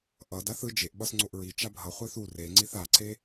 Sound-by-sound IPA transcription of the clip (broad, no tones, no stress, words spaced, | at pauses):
ʔʌd aθɯ d͡ʒeʔɓʌs ŋ͡ǀoʔɹi t͡ʃabʱʌ χʷɛθu reŋ͡ǀiθ aǀe